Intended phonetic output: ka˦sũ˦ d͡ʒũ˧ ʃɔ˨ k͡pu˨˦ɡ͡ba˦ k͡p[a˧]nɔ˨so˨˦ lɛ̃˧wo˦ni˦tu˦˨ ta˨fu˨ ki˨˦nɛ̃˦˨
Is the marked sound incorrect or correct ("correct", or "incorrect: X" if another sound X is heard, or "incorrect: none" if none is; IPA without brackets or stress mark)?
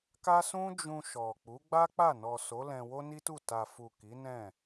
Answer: incorrect: a˦˨